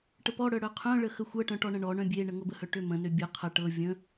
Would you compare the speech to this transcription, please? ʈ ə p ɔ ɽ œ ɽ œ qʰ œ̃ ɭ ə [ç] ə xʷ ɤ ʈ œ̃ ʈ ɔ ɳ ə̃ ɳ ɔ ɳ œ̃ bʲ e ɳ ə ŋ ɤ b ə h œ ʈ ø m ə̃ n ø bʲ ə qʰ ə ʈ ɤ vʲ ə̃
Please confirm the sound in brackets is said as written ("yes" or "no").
no